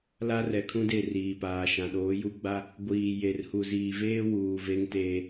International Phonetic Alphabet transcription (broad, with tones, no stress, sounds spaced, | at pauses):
l a˦ r ɛ˨ kʰ ũ˦ d e˦˨ r iː˨ p aː˨ ʃ ã˨ ɗ oː˨˦ j u˦ ɡ͡b a˦ | ɡʷ iː˨ j e˨ r h u˨ z iː˨ v eː˦ w uː˨ v e˦ ŋ t eː˦